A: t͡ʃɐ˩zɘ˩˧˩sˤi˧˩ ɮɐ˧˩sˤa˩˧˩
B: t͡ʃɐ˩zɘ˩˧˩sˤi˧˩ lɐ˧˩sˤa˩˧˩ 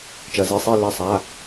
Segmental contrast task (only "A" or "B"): B